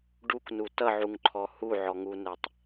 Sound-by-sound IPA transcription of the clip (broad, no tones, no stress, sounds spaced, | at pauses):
ɖ u k n u t ʌ ʕ u ŋ ǃʰ ɔ h u ʕ ɔ ŋ u n ɛ tˤ